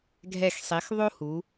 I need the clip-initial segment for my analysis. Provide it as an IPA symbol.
ɡʱ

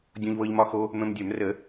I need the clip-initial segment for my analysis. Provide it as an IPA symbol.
dʲ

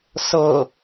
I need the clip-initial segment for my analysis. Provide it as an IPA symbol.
s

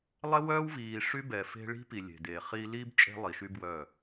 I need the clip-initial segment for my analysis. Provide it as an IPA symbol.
lˠ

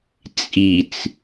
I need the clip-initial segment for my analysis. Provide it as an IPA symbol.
t͡sʼ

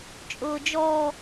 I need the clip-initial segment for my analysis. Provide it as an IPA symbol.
t͡ʃʼ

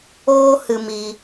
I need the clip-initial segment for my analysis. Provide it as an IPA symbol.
oː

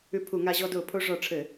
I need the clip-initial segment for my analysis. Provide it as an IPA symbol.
ʉ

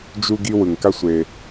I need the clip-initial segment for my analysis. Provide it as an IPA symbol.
d͡ʒ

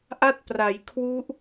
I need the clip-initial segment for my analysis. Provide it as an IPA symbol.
ʔ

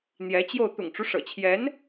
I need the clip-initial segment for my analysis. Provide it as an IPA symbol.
n̪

